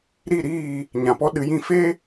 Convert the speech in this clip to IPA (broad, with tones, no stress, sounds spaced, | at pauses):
ɾ i˦˨ ɾ iː˦˨ | ɲ ã˨ p ɔ˦ ɗ ɨ˧ j ĩ˦ f e˦